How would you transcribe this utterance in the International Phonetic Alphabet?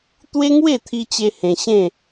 t̪we˦ŋwe˥˧t̪ʰi˧t͡ɕe˧ hẽ˧ɕẽ˥˧

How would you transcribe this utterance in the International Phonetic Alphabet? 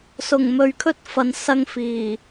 sʊ˨˩ŋmɵ˨ɥkʰɵ˥t̚fɐ˨n sɐ˧ŋfiː˨˩

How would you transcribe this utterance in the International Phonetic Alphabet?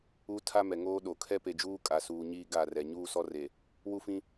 u˦ tʰa˦mɛ˨ŋoː˦ɗo˨ kʰɛ˦pe˨d͡ʒuː˦ kʼa˨suː˨ɲiː˦ ɡa˦˨rɛ˨ ɲuː˦sɔ˦re˨ | wu˦fĩ˦

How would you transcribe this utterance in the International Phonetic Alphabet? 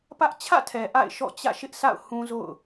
pä˦ʔ t͡ɕʰä̰˦˨tʰɛ˨ ʔa̰˦˨ɪ̯ʃɔ̰˦˨t͡ɕä̰˦˨ ʃɪ˦ʔsʰa̰˦˨ʊ̯hũ˦zo̰˦˨ʊ̯

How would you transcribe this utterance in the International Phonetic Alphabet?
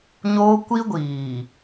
ɲoː˦ kʷi˦ ɡʷiː˨

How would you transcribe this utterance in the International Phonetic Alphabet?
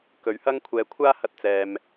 kɵ˨˧ɥhɐ˥ŋkʷʰɛː˧ kʷʰaː˥hɐ˧t̚t͡sɛː˨m

